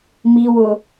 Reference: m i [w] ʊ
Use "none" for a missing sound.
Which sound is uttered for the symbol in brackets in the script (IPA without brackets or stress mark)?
w